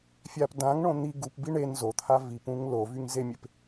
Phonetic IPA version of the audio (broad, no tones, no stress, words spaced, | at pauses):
fʲap dãŋɳõ n̪i ɡupbi ɳen zot̪ʰa vipũŋ lovyŋzemʲep